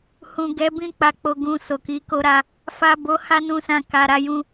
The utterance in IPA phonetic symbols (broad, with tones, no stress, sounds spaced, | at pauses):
h ũ˨ ɡ ɛ˨˦ b ĩ˧ k͡p a˨ k͡p o˨ ɡ ũ˨ s o˨ k i˨˦ k o˦ ɾ a˦ | f a˨ b o˨˦ h a˦ n ũ˧ s ã˧ k a˨ ɾ a˧ j ũ˧